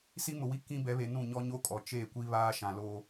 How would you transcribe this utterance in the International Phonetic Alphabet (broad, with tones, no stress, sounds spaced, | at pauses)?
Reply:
s i˦ m ʊ˨ w i˦ k ĩ˦ b ɛ˨˦ β e˨ n ũ˦˨ ɲ ɔ˦ ɲ o˦ kʼ ɔ˨ t͡ʃ eː˦˨ kʷ i˦ β aː˦ ʃ ã˨ l o˦